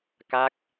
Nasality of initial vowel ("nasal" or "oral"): oral